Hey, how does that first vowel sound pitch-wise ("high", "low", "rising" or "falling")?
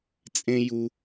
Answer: high